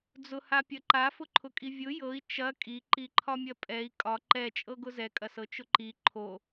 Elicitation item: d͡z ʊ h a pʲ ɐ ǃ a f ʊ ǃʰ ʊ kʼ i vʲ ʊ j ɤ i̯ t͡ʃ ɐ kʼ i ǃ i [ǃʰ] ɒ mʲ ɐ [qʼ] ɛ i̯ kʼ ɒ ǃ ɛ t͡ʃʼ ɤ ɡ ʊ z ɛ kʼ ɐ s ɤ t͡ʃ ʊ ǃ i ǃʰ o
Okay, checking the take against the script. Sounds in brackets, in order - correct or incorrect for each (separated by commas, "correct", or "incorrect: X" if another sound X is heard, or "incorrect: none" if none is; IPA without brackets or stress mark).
correct, incorrect: pʼ